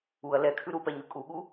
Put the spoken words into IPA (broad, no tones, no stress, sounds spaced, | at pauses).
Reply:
u ɐ̯ l ɛ kʰ ʉ ɾ u p ɛ ɲ ʉ kʼ u ɠ u